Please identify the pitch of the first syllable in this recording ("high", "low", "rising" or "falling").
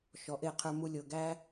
rising